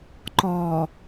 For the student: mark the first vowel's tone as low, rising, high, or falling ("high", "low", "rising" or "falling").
low